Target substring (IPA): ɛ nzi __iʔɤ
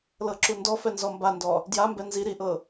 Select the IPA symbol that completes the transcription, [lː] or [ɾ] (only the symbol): ɾ